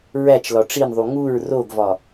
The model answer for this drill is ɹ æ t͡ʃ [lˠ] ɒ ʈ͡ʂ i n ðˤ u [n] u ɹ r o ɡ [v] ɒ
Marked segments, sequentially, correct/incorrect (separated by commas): incorrect, incorrect, correct